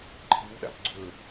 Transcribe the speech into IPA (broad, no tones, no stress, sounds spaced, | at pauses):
ǃʰ i w ɗ a̰ p ɡ͡ǀ ɵ